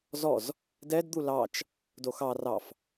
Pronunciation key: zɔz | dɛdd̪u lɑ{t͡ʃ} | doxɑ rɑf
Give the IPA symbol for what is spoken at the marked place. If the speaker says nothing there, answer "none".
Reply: t͡ʃ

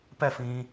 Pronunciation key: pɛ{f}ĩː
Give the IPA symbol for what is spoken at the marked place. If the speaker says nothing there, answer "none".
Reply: f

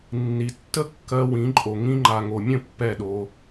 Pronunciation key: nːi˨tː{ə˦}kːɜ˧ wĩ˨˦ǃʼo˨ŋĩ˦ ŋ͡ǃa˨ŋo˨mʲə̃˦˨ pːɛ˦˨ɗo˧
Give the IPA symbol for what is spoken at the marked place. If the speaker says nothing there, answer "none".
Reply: ə˦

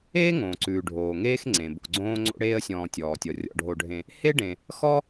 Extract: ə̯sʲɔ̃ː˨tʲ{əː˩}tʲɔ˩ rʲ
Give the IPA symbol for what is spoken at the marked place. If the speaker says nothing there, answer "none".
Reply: ɔː˩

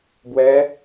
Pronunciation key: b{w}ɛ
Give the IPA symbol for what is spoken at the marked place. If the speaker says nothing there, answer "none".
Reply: w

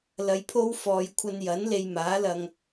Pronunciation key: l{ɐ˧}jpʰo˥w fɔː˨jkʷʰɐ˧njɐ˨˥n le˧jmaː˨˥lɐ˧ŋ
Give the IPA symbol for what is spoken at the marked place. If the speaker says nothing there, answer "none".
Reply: ɐ˧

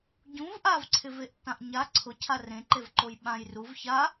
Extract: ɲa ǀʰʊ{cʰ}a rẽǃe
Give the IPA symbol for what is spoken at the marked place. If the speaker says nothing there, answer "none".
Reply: cʰ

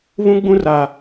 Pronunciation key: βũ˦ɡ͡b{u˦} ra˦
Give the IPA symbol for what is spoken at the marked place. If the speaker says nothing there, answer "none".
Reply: ũ˦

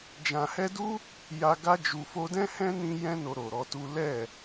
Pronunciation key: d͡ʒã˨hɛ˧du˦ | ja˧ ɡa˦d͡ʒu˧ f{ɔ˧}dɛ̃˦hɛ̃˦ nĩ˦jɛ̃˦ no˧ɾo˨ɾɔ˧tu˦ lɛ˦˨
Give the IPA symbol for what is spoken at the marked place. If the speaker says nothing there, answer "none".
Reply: o˧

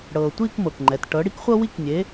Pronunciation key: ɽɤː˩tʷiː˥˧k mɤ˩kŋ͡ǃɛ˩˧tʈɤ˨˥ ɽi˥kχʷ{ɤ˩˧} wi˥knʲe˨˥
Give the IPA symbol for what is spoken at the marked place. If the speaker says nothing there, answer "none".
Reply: ɤ˥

